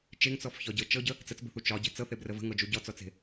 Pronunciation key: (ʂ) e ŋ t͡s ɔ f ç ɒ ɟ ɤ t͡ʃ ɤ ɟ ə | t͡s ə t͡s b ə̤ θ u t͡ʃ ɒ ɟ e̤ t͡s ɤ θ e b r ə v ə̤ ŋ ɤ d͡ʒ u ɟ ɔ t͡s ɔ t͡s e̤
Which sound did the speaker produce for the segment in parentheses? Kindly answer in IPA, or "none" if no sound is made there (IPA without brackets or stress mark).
t͡ʃ